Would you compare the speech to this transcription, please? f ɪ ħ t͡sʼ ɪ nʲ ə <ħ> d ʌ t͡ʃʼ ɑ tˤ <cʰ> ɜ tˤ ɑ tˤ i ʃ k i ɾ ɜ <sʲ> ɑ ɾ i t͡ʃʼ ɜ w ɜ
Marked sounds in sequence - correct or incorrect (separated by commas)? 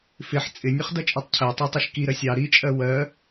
incorrect, correct, correct